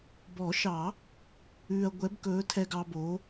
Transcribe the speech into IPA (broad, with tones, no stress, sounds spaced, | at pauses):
b ɔ˨˩˦ ʃ ɑ˨˩˦ | ʉː˨ ɐ̯ ɡʷ ɛ˨˦ b k ɵː˨˦ tʰ ɛ˨ ɡ ɑ˨ b o˨˦